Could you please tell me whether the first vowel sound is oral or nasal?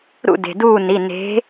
oral